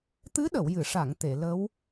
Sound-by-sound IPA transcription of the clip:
t̪ ɨ˧˥ ɗ ə˨˩˨ w j ɨ˨˩˨ ʂ a˨˩˨ ŋ t̪ e˨˩˨ l ə˧˥ w

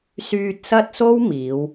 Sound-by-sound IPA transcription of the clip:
s yː˧ t̚ s ɐ˥ t̚ s o˥ w m iː˨˧ w

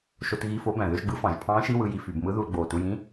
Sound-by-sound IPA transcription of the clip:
ʃ o˧ t ɣ i˧˥˧ f o˧˥ b æ̃˨˩ ð ø˧˥˧ ʒ ɡ͡b ɯ˧˥ f ɑ̃˧˩˧ ʒ pʰ ɑ̃ː˧˥ ʃ i˧˥˧ w ɯ˧ j i˧ f y˧˩˧ b m ɯ˧˥ ð u˧ l ɡ͡b oː˨˩ t u˧ j ĩ˧˥˧

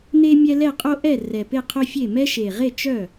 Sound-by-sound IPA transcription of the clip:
n e˦ mʲ ɛ˦ l ɛ˥˩ qʼ o˦ ʔ ɛ˥˩ r ɛ˨˩ p e˥˩ qʰ œ˦ fʲ e˥˩ m ɛ˦ ʃ e˨˩ ʁ e˥˩ t͡ʃ œ˥˩

